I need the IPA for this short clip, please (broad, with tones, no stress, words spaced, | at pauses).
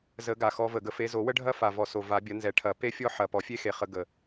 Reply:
zə˨˩˦ɡa˨˩xɔ˨˦və˨˩ ɡə˨˦fe˨˦zo˨˩˦wə˥ ɖʱɐ˥fa˨˩vɔ˨˩ so˨˩ va˨˩˦bʲɐ˨˦ nzɛ˨˩˦ʈʰɐ˨˩˦ pe˥ fʲɔ˥ħɐ˨˩ pɔ˨˩˦fʲe˥xe˨˩χə˨˩˦ ɡə˨˩